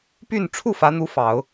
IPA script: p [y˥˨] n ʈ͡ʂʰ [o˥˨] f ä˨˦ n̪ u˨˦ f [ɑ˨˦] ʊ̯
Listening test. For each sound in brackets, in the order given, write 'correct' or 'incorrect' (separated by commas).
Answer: correct, incorrect, correct